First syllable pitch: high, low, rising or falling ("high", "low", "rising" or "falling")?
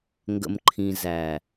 low